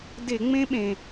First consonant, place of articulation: alveolar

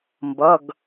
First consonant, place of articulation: labial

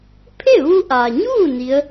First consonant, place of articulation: labial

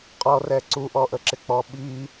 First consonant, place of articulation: uvular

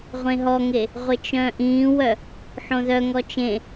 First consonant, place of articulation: uvular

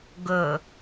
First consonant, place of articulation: velar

